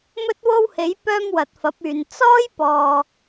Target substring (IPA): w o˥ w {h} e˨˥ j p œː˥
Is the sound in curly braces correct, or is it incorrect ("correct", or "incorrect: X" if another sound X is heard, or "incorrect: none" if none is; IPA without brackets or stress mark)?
correct